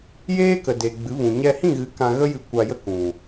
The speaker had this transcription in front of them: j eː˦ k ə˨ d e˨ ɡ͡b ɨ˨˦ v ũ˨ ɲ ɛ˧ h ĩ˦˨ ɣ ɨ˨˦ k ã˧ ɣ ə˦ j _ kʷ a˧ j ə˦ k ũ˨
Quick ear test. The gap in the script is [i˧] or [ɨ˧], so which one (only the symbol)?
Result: ɨ˧